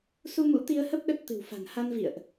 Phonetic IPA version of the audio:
su˧mṵ˧˥t̪i˧ə̯hə˦˥p̚ ɗə˦˥t̚t̪ɨ̤˨˩wfa̤˨˩n ha˧nvḭ˧˨ə̯ʔ

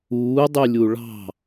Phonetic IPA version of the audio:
uːdˤylʲu ɭɑ̤

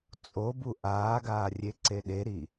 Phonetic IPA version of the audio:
t͡sʼobu ʔaːɡaːrʲeǀe ɗeɾi

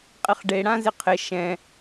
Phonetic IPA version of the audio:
qʼɪχɖe ɽãzɪqʰɪ ʃɛ̃

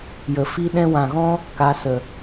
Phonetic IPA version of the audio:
jə˨fi˦ ɗɛ̃˧wã˨ɣɔ̃˦ | ka˨˦sə˨

